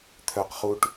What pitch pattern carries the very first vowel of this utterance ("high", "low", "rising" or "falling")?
low